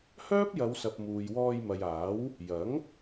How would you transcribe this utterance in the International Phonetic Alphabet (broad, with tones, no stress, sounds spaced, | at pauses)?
h œː˥ p̚ j ɐ˨˧ w s ɐ˨ p̚ m uː˨ j w ɔː˧ j m ɐ˨ j aː˨˥ w | j ɐ˨˥ ŋ